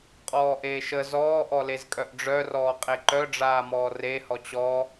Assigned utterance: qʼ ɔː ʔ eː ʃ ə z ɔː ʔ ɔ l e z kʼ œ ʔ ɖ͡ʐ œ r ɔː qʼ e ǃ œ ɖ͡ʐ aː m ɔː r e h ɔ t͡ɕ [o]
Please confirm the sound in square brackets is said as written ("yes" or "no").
no